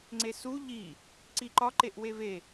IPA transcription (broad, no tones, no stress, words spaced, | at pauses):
ŋ͡ǀesu ʎi | ǀiǃɒ ǃeʔweve